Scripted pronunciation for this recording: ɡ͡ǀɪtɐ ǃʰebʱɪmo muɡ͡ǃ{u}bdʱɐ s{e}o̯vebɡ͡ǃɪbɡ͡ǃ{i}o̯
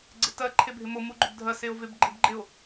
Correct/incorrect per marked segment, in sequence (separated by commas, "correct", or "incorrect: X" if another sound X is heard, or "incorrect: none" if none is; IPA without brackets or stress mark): incorrect: ʏ, correct, incorrect: ɪ